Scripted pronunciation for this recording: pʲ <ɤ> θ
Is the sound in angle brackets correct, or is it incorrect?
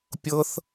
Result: correct